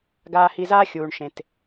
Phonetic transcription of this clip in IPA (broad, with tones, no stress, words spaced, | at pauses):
ɡaː˧hi˧zaː˦ xʲuː˨ɳʃẽ˨t